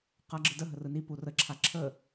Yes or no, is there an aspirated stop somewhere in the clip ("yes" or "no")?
yes